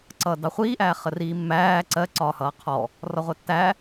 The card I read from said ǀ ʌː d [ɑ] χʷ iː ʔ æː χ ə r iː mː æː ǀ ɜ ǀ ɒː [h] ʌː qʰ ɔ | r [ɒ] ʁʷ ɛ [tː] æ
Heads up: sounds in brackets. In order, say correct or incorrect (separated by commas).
correct, correct, correct, correct